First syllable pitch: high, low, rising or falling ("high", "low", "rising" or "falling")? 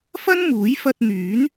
high